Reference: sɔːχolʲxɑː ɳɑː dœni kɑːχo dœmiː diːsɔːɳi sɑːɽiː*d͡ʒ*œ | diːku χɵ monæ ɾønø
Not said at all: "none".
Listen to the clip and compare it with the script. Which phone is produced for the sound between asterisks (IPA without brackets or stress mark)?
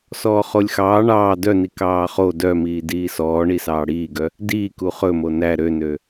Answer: ɡ